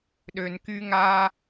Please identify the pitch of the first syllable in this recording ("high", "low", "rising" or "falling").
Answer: low